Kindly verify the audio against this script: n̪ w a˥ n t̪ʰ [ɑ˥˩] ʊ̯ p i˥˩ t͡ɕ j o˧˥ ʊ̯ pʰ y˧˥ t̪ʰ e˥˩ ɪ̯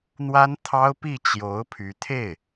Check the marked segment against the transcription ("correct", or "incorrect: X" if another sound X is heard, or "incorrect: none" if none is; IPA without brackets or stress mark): incorrect: ɑ˥